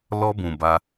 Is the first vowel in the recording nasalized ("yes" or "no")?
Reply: no